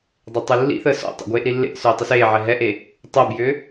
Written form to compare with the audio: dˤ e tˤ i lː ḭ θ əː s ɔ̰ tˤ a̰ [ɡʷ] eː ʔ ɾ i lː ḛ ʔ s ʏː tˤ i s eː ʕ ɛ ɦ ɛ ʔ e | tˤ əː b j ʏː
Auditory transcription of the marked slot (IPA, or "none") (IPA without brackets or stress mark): ɡʷ